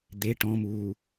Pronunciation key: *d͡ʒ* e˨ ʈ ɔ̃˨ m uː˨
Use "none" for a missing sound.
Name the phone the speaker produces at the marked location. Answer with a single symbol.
d̪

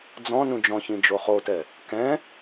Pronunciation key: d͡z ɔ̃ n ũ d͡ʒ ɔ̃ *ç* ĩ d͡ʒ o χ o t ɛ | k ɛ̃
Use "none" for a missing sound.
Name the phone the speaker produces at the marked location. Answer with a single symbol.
ç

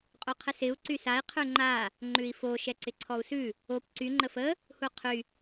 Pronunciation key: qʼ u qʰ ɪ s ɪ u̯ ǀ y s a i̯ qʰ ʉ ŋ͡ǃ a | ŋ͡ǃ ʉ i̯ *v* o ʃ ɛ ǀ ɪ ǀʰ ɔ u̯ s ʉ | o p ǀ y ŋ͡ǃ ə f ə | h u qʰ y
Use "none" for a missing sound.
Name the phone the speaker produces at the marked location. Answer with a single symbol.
f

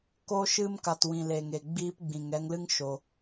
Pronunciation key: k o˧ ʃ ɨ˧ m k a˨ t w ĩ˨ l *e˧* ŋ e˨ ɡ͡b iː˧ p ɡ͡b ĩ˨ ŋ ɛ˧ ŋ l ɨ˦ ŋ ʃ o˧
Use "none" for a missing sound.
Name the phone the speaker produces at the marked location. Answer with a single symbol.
e˨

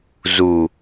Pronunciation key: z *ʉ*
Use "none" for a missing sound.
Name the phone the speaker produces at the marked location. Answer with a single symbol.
u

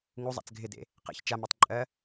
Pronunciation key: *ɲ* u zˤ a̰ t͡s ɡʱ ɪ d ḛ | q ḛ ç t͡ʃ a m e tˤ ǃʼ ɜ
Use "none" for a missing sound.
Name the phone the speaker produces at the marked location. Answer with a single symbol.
ŋ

